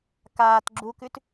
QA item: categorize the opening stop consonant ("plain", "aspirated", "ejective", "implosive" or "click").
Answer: plain